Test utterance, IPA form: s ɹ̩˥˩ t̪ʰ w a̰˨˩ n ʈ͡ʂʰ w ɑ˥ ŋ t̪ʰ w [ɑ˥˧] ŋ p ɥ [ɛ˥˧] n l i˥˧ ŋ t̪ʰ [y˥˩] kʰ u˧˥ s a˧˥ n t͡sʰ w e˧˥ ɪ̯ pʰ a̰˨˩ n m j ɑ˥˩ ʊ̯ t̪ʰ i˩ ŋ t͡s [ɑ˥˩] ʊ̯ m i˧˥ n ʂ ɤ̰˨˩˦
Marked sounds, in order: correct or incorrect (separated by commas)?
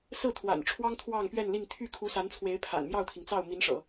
correct, correct, correct, correct